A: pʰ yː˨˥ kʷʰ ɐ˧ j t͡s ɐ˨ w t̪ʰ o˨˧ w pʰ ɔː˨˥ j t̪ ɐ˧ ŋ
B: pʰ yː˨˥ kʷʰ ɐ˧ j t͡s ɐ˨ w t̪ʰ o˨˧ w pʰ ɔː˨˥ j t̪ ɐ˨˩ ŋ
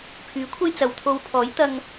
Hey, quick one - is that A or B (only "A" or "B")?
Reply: A